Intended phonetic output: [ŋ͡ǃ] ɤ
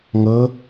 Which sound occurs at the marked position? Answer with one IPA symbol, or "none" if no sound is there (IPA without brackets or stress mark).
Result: ŋ